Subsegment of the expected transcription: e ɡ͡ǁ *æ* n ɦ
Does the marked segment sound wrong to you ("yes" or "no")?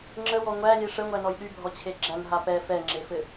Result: no